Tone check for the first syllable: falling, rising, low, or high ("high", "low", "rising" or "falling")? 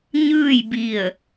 falling